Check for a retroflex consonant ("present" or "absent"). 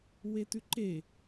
absent